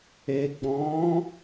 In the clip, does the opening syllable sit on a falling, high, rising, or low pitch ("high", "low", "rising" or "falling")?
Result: low